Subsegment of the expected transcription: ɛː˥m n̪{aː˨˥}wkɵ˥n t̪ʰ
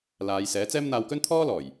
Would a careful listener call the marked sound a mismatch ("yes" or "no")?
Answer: yes